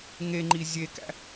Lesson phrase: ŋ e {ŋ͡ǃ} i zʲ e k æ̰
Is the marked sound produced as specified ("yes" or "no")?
yes